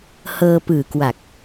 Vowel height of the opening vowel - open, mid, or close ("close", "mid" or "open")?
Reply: mid